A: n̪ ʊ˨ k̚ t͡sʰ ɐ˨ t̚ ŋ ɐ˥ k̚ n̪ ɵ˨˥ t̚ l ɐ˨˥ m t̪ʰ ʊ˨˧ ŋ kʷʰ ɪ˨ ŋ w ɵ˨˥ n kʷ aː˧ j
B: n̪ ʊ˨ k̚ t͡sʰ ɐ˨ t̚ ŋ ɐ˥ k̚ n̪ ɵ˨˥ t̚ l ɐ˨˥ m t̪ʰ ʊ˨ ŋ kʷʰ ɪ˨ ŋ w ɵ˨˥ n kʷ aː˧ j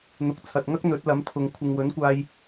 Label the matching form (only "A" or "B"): B